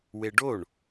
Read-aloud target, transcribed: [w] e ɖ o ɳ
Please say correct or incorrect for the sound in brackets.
correct